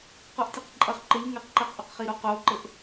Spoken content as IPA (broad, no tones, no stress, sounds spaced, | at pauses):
q o ʔ tʲ e q ǃʼ ɐ χ ǃ ɘ ʎ ŋ ɘ q ǃ ɛ q ʔ o q χ i ɾ o q o ǃ ɘ ʔ